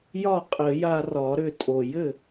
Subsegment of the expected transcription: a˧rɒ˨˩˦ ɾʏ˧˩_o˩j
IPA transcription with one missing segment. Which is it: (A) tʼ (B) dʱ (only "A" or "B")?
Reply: A